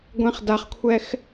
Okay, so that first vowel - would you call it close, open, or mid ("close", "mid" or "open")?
mid